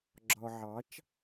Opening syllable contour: low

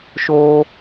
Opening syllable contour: high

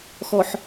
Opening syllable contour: low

